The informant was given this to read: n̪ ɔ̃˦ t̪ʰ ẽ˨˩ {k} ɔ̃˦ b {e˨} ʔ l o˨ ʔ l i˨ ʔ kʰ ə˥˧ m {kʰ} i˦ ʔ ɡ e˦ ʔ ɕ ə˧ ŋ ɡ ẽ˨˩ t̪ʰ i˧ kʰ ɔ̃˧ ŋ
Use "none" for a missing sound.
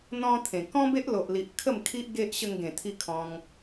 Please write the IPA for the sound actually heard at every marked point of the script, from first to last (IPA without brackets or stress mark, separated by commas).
k, e˦, kʰ